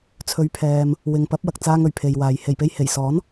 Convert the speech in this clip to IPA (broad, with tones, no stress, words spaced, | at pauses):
t͡sʰɵ˨˥ɥpʰɛː˨m | wɪ˨ŋpɐ˨˥p̚wɐ˨k̚ t͡saː˧ŋɵ˨˩ɥ pʰe˨jwaː˨j he˨˩jpe˧jhe˨˩j sɔː˨˥n